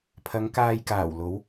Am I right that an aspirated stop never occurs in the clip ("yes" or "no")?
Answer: no